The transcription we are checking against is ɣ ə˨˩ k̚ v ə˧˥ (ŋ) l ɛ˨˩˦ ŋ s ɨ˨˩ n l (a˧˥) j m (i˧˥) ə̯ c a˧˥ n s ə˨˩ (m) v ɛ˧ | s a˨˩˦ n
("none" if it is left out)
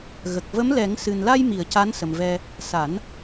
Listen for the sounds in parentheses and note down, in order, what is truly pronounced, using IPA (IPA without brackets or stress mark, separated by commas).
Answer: m, a˧, i˨˩˨, m